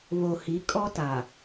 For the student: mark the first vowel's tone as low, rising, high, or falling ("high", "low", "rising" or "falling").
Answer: low